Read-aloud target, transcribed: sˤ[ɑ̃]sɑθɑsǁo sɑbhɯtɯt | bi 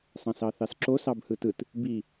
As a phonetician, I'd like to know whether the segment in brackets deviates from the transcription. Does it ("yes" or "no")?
no